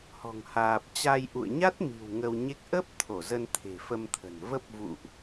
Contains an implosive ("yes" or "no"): no